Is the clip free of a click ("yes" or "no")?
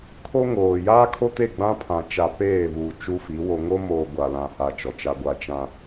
yes